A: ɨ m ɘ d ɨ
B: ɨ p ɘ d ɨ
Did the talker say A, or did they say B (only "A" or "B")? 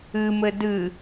A